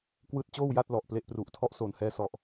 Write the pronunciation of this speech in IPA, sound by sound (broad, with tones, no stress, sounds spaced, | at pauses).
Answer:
k w ɯː˦˥ t̚ t͡ɕ oː˥˩ w j a˥˩ t̚ l ɔ˨˩ ʔ p l e˦˥ ʔ p r u˨˩ ʔ tʰ ɔ˥˩ ʔ s o˨˩ n h ɛː˧ s ɔ˨˩ ʔ